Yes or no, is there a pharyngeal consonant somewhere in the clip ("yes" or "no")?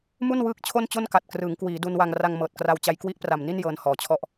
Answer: no